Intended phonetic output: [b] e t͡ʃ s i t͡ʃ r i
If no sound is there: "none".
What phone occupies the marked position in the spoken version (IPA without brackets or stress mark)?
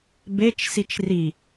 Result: b